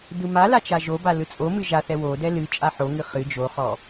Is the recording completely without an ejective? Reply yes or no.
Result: no